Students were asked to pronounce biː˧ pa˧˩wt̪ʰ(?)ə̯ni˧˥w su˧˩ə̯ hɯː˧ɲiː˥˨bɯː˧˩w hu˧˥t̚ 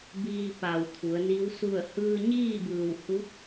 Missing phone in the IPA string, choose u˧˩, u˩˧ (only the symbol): u˩˧